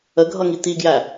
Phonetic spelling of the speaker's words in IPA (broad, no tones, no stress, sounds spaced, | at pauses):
ə ɡʱ ʌ ŋ i t̪ i ɡ j æ